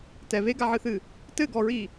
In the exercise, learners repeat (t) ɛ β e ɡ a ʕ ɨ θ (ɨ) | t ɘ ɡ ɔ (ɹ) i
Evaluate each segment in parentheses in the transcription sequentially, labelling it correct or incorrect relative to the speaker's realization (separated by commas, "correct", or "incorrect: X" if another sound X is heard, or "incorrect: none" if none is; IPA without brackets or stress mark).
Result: correct, correct, correct